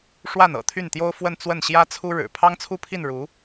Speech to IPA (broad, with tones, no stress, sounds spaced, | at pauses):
ʂ w a˥˩ n ɤ̰˨˩ t̪ʰ y˥˩ n t̪ j o˥ ʊ̯ f w ə˥˧ n t͡s w ə˥˩ n ɕ j ä˥ t͡sʰ u˥ ɻ ɻ̩˨˩ pʰ ɑ˥ ŋ t͡sʰ u˥˧ pʰ i˥˩ n ɻ u˧˥